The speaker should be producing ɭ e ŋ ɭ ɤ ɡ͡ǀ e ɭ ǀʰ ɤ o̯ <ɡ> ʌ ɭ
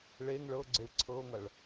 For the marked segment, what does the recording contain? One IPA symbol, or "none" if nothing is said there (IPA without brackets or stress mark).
ŋ